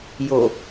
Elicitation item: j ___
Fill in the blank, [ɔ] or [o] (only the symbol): o